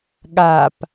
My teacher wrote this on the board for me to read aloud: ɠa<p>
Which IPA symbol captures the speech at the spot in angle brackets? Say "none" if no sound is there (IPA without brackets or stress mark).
p